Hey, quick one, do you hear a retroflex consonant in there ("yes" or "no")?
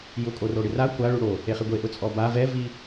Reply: yes